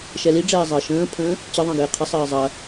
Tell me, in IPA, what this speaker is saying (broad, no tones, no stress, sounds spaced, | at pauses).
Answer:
ʃ ɛ l i ɖ͡ʐ ɛː zˤ ɘː ʃ ə̃ː pʰ ə̃ː | t͡ɕ ɘ ðˤ ə̃ː ɡ ɪː qʰ ɪ sˤ ɘː zˤ ɐ